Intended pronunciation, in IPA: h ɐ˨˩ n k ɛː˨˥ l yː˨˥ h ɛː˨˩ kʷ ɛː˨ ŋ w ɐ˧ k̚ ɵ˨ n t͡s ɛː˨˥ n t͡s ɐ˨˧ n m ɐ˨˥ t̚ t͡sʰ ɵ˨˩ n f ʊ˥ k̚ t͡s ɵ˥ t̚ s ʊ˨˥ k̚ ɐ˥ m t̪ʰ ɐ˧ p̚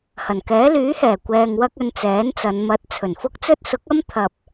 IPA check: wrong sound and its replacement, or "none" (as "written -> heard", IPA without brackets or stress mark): none